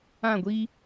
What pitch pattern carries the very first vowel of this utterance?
falling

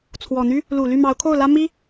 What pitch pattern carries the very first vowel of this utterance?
low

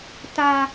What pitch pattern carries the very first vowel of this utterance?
low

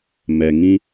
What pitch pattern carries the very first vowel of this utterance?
low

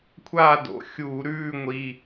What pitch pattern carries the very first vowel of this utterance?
falling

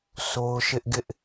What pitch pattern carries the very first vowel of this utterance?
high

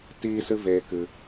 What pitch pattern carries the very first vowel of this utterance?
high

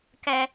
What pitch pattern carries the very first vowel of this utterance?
high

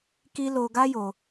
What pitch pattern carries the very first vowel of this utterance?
high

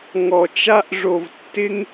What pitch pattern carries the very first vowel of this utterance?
low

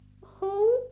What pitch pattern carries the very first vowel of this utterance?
rising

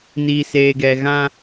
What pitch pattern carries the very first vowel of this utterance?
low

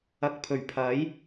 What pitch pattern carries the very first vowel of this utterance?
low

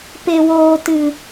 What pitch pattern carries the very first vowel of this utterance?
low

